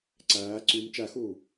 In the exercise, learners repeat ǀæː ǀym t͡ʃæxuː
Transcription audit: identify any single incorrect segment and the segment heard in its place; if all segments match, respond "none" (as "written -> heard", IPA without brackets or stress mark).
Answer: none